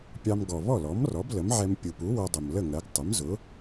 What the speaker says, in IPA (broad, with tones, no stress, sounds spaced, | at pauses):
pʲ ɑ˧ m ɡ ɔ˩ β ɔ˥˩ l ɔ˩˥ m r ɔ˩˥ b l ə˩˥ m ʕ ɛ˧ m pʲ u˩ p u˩˥ w ʌ˧ dˤ ʊ˩ m l ə˥˩ ŋ ɜ˩˥ ɡ tˤ ə˩˥ m z ʊ˩˥